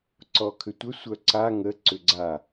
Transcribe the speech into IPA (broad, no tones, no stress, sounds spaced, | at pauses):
ǀ ɔ kʰ ʏ tʷ ə sʷ œ ǀ a ŋ ə ǀ ʏ ɡ͡ǀ a